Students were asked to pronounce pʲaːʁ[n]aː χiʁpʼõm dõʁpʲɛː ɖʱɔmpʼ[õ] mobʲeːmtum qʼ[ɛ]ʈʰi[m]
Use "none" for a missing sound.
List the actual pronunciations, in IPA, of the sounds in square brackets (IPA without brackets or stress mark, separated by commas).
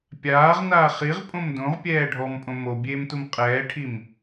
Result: n, õ, ɛː, m